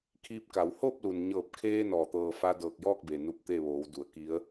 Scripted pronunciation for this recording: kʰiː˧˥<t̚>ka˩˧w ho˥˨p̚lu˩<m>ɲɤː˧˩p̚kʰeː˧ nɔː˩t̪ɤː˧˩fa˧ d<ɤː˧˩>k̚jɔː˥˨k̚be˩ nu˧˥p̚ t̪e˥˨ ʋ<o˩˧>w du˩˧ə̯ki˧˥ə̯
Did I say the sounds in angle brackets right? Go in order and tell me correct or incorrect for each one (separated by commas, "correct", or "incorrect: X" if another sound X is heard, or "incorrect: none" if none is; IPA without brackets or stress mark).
incorrect: p̚, incorrect: n, correct, incorrect: oː˩˧